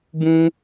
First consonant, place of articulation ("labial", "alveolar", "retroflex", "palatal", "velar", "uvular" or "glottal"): labial